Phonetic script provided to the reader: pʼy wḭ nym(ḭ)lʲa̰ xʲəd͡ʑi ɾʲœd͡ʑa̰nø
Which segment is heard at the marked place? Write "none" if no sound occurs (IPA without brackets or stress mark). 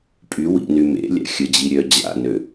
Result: ḛ